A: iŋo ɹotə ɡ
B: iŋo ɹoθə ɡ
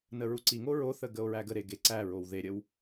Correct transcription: B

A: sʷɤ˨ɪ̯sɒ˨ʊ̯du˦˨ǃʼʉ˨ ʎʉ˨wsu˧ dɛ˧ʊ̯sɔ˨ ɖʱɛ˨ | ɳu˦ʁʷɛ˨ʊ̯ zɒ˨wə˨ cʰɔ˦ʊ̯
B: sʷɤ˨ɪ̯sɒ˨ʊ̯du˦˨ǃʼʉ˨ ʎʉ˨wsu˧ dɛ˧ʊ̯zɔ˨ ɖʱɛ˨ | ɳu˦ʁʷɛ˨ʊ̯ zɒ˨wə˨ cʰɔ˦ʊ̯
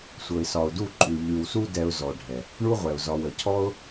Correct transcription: B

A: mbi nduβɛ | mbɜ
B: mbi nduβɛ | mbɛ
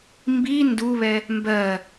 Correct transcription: A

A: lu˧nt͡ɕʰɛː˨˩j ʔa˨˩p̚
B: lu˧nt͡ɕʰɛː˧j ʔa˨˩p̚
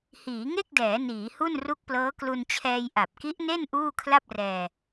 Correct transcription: B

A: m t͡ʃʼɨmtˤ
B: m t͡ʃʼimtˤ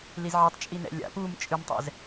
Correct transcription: A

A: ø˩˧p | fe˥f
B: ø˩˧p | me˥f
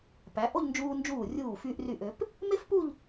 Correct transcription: B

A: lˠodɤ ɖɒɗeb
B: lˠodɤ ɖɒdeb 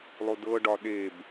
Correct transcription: A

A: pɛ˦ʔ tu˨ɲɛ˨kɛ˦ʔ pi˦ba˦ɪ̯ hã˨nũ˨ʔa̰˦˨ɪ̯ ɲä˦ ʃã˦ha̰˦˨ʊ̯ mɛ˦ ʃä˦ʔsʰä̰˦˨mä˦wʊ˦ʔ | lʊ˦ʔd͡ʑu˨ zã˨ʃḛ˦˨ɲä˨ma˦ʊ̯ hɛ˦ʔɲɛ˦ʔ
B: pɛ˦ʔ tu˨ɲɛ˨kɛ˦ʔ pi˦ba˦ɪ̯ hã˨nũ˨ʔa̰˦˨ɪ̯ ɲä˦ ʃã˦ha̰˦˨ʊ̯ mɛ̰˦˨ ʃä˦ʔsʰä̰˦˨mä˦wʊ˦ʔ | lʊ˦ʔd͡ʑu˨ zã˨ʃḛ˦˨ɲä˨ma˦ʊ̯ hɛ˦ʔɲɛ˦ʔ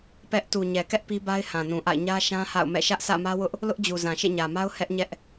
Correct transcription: B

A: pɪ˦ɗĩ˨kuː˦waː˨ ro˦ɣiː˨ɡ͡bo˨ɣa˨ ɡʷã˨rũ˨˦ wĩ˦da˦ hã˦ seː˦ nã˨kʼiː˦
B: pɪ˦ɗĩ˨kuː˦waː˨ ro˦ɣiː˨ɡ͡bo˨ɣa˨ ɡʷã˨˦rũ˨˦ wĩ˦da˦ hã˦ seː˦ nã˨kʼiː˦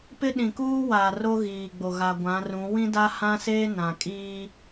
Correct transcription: B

